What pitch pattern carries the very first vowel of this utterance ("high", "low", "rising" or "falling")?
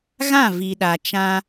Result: falling